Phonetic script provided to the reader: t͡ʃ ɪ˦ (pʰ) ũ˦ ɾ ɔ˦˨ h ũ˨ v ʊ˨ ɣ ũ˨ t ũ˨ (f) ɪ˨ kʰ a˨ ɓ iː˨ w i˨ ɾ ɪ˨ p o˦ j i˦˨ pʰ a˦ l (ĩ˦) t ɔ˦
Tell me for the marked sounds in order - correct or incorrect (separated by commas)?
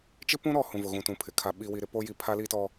incorrect, incorrect, incorrect